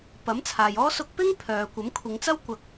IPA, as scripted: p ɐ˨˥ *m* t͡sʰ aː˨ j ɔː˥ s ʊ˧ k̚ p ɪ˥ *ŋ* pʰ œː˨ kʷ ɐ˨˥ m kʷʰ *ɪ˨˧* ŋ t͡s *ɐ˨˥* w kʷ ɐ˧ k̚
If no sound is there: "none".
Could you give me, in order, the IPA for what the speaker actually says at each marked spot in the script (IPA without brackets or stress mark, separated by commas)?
m, ŋ, ɪ˨˧, ɐ˥